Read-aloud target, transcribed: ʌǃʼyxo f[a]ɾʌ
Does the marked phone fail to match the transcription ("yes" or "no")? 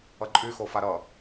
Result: no